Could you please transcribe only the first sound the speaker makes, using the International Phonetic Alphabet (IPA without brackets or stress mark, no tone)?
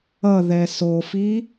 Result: ʌ